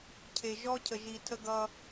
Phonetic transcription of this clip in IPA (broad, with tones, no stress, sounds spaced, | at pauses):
cʰ e˨ ʒ ɔ˦ cʰ ə˨ ʒ i˨ tʰ ə˦ ɡ ʌ˦